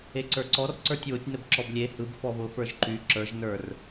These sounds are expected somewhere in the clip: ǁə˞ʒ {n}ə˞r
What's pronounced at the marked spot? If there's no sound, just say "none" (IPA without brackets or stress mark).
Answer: n